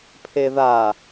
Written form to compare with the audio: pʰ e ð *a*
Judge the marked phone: correct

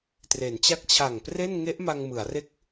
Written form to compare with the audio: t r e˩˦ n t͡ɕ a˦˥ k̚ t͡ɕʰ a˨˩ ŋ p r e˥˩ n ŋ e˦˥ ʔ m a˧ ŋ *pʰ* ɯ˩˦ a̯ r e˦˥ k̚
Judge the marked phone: incorrect: m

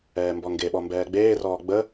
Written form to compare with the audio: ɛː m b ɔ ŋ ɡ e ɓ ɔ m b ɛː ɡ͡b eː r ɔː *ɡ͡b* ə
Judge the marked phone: correct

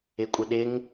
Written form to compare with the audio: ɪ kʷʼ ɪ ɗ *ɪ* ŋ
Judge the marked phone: correct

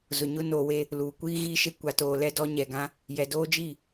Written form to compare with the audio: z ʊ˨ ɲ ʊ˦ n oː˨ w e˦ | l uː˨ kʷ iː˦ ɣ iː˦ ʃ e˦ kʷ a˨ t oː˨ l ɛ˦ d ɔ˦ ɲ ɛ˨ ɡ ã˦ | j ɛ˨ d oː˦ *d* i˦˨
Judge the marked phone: incorrect: d͡ʒ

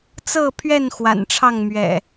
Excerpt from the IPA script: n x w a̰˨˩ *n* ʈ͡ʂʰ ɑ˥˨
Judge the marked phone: correct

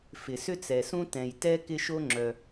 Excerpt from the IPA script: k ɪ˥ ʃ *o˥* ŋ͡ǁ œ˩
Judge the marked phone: correct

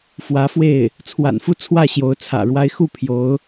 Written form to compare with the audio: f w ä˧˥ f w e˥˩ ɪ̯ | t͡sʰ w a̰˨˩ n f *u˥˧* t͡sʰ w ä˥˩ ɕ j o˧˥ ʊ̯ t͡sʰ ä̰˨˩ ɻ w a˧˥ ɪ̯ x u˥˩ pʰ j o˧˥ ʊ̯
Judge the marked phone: correct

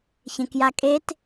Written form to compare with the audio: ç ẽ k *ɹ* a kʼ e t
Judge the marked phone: incorrect: j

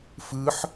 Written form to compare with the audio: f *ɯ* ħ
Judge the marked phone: correct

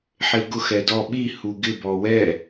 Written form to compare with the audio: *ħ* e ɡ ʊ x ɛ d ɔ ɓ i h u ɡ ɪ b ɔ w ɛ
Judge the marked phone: correct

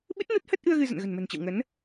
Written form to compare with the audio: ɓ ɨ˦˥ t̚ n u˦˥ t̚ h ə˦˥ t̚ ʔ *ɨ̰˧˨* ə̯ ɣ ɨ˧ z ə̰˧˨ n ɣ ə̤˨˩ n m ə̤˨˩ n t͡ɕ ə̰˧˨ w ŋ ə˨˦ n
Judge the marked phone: incorrect: ɨ˧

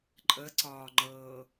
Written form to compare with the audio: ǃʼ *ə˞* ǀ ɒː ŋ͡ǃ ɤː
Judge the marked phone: incorrect: ə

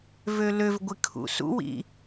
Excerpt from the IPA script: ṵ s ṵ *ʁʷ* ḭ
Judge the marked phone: incorrect: w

